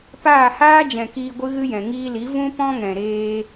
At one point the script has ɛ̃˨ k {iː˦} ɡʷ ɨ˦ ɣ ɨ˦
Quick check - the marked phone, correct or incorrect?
incorrect